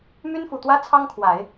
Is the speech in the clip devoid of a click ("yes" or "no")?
yes